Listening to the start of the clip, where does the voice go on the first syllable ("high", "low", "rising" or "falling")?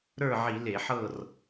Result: falling